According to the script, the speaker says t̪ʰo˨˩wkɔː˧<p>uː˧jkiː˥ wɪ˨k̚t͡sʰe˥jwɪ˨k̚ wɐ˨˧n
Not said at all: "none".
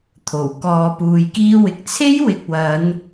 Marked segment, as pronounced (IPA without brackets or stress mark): p